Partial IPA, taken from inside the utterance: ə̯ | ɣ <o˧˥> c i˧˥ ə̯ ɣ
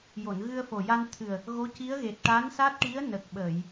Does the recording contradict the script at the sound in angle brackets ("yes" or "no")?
no